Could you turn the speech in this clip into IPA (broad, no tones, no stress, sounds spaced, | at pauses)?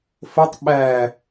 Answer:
f ə tˤ ɓ æ